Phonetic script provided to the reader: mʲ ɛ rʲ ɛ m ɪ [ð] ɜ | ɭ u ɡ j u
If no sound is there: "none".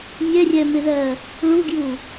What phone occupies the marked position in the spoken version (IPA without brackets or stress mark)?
ð